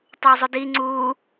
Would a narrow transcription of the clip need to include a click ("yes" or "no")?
yes